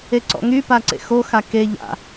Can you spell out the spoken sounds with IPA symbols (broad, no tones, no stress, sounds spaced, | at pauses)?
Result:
e ǀ ɔ̰ ŋ y p a ǀ ḛ x o x a k e ʎ a̰